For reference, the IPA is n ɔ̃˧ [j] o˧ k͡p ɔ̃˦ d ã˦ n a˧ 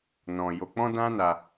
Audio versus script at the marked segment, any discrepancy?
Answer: no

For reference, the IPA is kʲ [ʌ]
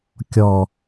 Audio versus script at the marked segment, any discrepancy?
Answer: yes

